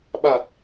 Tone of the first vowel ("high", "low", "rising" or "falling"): low